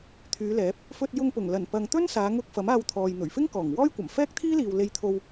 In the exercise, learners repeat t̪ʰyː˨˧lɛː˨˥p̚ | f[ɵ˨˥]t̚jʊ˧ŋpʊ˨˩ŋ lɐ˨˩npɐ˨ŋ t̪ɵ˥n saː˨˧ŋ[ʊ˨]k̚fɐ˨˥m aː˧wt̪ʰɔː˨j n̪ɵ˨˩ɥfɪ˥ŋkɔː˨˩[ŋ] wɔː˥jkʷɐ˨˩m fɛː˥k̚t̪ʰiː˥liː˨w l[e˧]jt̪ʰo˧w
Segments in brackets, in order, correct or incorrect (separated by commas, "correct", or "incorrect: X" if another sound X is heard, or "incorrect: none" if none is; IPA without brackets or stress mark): incorrect: ɵ˧, incorrect: ʊ˧, correct, correct